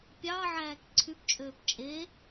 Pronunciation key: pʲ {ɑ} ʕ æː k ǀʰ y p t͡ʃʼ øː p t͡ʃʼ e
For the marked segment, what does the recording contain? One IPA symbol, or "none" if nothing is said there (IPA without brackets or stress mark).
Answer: ɑ